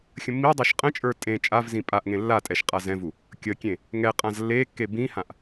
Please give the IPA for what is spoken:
xʲ ə̃ mː i dˤ ə˞ ʃ qʼ ə̃ t͡ʃʼ ə˞ tʼ ẽ t͡ʃʼ a v z ĩ pʼ a ʔ ŋ ẽ lː a tʼ ɛ ʃ qʼ a z ɛ̃ v u | kʲ ə kʲ ẽ | ŋ ɛ qʼ ã z lː e kː e b ĩ h ã ʔ

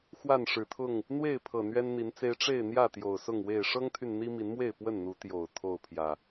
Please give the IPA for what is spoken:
x w a˥˨ n ʂ ɻ̩˨˩ t̪ʰ ʊ˥˨ ŋ | n̪ w e˥˨ ɪ̯ pʰ ɤ˨˩ n̪ ɥ ɛ˦ n n̪ i˨˦ n t͡s e˦ ɪ̯ ʈ͡ʂ e˥˨ ɪ̯ n̪ j ä˥˨ t̪ j o˨˩ ʊ̯ s ʊ˥˨ ŋ w e˥˨ ɪ̯ ʂ ɤ˦ ŋ t̪ʰ y˨ n n̪ i˦ m i˨˦ n m w e˥˨ ɪ̯ p w ə˥˨ n n̪ u˨˦ t̪ j o˨˩ ʊ̯ t̪ʰ o˥˨ ʊ̯ pʰ j ä˨˩

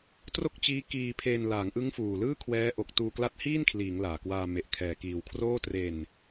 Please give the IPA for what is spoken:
t r o˥˩ k̚ t͡ɕ iː˦˥ k iː˧ pʰ e˧ n l aː˩˦ ŋ ʔ ɯ˦˥ ŋ f uː˨˩ l ɯː˥˩ kʰ w ɛː˦˥ ʔ o˨˩ k̚ t uː˧ k l a˦˥ t̚ h iː˥˩ n kʰ l iː˩˦ ŋ l aː˨˩ k w aː˧ m e˨˩ ʔ kʰ ɛː˨˩ k iː˨˩ w kʰ r oː˥˩ t r e˧ n

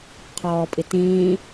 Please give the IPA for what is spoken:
qʰ ɔː pʼ i t ĩː

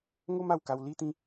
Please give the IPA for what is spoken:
ŋ o˦ m a˥˧ w k a˧ w l i˦ t̪ ĩ˦

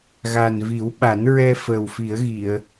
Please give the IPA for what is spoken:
ɣ a˨˩ n v i˨˩˦ w ɓ a˨˩˦ n ɹ ɛ˧ f ə˨˩ w f i˨˩˦ ə̯ ɣ i˨˩˨ ə̯

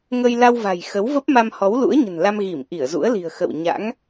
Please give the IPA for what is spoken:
ŋ ə˧ j l a˧ w v a̤˨˩ j x ə˨˦ w v ə˦˥ p̚ m a˧ m h ɔ˨˦ w l ṵ˧˥ ə̯ ɲ ə̤˨˩ n l a˧ m ɣ i˧˩ m ʔ i˧˩ ə̯ z ṵ˧˥ ə̯ l i̤˨˩ ə̯ x ə̰˧˨ w ɲ a̰˧˥ ŋ

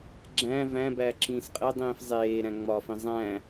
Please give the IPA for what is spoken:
ɡ͡ǁ æ̃ v æ̃ b æ ǁ ĩː s qʼ e dˤ ĩː f zˤ eː ɾ æ̃ ŋ͡m ɒ f ĩ zˤ æ̃

